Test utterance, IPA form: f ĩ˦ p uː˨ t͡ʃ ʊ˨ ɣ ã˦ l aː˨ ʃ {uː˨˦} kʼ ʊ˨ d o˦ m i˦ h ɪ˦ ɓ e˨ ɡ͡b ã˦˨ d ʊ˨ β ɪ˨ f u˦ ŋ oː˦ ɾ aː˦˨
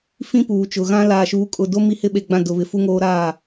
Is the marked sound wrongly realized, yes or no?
no